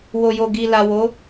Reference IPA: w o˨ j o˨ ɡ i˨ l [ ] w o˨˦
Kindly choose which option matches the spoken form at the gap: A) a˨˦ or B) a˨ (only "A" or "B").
B